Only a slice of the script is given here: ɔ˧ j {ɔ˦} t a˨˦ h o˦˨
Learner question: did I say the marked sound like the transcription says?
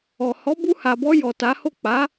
no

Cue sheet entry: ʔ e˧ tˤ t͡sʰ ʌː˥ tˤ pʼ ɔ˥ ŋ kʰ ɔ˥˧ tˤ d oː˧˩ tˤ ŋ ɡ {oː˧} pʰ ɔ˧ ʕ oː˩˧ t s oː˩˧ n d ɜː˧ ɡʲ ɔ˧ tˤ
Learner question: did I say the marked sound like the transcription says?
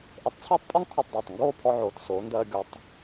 no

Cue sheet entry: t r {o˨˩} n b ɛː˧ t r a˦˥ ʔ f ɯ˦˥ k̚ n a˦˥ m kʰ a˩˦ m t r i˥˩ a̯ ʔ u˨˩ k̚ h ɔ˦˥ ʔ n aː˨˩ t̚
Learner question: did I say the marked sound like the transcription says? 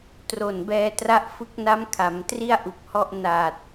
yes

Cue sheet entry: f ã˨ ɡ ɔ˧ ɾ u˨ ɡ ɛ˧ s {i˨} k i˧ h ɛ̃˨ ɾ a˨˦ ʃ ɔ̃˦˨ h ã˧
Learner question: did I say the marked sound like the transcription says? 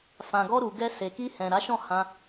no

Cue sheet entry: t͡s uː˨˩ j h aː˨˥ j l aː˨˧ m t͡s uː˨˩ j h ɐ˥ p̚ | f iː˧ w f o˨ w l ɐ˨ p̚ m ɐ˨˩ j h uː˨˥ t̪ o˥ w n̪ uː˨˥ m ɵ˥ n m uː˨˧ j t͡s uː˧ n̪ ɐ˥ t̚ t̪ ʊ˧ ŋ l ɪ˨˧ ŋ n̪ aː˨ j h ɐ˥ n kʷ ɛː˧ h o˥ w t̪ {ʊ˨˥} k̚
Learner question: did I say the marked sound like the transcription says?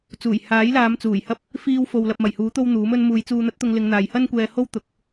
yes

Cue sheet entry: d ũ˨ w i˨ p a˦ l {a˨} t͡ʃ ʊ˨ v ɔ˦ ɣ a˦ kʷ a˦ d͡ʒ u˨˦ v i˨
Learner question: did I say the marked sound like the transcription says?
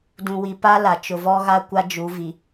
yes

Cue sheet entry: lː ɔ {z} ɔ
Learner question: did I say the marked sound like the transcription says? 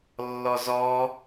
yes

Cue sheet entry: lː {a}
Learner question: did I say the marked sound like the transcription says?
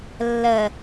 no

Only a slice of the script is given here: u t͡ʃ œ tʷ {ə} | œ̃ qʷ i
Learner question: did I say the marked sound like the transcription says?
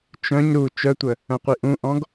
yes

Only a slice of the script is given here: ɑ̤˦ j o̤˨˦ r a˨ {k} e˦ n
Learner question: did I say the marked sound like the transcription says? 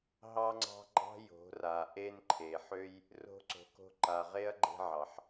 no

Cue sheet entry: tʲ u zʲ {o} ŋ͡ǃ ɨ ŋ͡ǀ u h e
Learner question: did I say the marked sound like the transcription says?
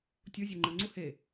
yes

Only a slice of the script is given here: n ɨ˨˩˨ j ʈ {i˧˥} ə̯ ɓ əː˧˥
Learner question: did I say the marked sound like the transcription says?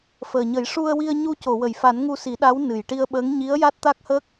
no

